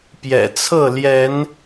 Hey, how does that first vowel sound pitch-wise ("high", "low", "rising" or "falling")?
low